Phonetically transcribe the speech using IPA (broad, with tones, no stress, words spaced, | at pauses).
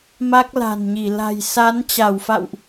ma˦˥k̚la̤˨˩nɲi˧˩ la̤˨˩jsa˨˦n t͡ɕa˧˩wfa̰˧˨wʔ